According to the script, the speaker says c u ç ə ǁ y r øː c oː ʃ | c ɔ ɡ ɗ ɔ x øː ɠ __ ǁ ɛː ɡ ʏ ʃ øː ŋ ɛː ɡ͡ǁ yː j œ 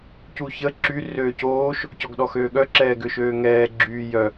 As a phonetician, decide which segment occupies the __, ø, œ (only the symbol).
œ